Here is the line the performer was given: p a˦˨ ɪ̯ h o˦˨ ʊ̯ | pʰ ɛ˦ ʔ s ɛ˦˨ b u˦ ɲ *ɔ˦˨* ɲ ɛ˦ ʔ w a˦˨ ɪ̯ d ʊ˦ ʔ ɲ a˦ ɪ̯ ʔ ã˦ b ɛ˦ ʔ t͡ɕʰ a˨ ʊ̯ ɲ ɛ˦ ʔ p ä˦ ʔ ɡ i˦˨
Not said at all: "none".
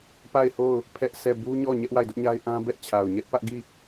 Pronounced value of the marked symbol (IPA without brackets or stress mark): ɔ˦˨